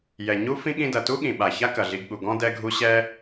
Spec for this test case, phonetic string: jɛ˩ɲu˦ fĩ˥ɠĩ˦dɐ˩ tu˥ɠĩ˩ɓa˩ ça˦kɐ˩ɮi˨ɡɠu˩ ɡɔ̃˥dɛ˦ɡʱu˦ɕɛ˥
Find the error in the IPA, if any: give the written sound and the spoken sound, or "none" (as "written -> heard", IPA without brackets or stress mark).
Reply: none